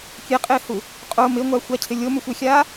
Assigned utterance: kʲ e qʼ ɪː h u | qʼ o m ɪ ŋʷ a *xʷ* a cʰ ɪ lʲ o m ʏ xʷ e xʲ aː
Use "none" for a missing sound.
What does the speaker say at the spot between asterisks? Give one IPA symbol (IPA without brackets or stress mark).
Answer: xʷ